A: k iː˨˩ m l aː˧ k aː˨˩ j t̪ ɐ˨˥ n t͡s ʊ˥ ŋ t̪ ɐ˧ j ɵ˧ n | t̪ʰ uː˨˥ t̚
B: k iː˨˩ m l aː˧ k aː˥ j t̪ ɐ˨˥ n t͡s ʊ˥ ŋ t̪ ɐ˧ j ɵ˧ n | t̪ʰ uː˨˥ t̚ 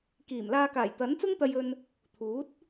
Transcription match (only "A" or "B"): A